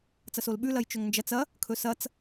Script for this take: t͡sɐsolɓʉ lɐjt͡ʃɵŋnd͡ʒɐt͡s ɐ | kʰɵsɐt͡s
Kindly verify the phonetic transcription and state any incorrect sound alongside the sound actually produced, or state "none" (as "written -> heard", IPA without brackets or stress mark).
none